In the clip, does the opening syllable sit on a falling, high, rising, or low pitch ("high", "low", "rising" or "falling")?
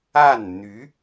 falling